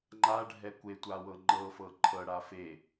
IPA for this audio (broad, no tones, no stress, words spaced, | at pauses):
ŋ͡ǃaɖʱɛ kʷetʷawɤ ŋ͡ǃɤfɤ ǃʰɤɽa fe